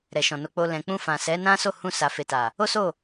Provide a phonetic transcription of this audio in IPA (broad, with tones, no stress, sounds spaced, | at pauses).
ɾ ɛ˨ ʃ ɔ̃˨ n o˧ k͡p o˧ l ɛ̃˨ k͡p ũ˧ f ã˨ s ɛ˨˦ n ã˦ s o˦˨ h ũ˧ s a˨ f e˨ t a˨ | o˦ s o˦˨